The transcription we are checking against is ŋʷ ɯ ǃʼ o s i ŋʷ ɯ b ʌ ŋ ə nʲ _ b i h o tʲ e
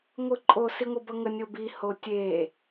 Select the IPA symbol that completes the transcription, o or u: o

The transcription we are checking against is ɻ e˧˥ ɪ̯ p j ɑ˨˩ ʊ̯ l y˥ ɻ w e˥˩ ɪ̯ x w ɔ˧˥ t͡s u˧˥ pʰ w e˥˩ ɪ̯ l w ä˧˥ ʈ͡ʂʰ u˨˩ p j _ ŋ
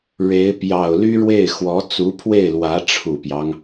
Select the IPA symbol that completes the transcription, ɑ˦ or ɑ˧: ɑ˦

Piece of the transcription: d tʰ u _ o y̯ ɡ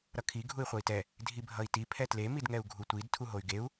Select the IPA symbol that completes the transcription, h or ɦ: ɦ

